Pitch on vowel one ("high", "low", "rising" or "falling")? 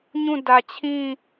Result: falling